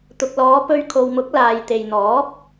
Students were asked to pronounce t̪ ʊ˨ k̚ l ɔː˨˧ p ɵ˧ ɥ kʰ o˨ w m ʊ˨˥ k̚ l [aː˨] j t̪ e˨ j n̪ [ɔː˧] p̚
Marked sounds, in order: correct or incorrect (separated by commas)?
correct, incorrect